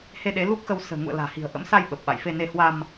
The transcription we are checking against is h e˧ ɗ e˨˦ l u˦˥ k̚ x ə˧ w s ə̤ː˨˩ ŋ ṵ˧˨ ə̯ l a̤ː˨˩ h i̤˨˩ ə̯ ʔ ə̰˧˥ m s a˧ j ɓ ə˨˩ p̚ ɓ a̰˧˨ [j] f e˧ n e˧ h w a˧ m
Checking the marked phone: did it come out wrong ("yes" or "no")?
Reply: no